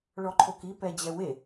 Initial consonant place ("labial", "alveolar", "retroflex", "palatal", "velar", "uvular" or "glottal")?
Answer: retroflex